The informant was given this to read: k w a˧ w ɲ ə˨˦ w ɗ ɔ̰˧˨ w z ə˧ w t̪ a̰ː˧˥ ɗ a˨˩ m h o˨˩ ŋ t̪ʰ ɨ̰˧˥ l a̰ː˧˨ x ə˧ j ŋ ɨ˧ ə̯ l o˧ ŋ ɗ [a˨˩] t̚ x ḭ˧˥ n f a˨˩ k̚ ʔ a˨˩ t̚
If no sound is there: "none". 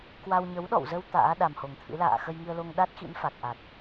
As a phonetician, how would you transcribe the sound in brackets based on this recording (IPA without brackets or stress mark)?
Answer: a˦˥